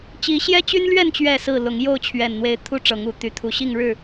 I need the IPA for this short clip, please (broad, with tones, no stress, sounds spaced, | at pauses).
t͡ɕ i˨˦ ɕ j ɛ˦ t͡ɕ y˦ n l ɥ ɛ˥˨ n t͡ɕ ɥ ɛ˥˨ s ɹ̩˥˨ l ʊ˨˦ ŋ j o˥˨ ʊ̯ t͡ɕʰ ɥ ɛ˨˩ n n̪ w e˨˦ ɪ̯ t̪ʰ u˦ ʈ͡ʂ ɤ˨˦ ŋ u˨˩ t̪ y˨˦ t̪ʰ u˨˩ ɕ i˥˨ ŋ ɻ ɻ̩˥˨